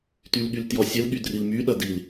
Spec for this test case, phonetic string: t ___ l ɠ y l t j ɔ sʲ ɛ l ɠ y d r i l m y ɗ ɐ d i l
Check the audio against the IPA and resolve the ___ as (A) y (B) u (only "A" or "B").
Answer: A